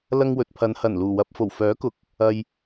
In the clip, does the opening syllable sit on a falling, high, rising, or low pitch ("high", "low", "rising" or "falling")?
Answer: high